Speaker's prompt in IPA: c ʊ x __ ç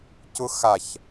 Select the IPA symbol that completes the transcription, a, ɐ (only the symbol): a